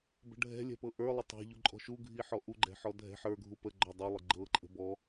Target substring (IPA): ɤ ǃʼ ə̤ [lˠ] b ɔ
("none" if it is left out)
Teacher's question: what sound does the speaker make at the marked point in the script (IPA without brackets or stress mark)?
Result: none